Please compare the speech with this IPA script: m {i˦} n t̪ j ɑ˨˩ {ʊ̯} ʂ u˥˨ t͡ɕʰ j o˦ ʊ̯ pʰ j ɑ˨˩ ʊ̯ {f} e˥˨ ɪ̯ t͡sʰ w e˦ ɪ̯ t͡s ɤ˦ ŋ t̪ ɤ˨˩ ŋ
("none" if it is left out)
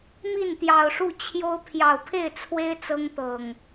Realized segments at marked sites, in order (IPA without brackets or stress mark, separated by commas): i˥˨, ʊ̯, pʰ